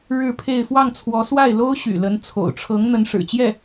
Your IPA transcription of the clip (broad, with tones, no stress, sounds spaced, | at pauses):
ɻ ɻ̩˥˧ pʰ e˥˧ ɪ̯ f w ɑ˥˩ ŋ t͡sʰ w ɔ˧˥ s w a˥˩ ɪ̯ l o˥ ʊ̯ ɕ y̰˨˩ l ə˧˥ n t͡sʰ o̰˨˩ ʊ̯ ʈ͡ʂʰ ɤ˧˥ ŋ n̪ ə˧˥ n ʂ ɻ̩˨˩ t͡ɕ j ɛ˥˩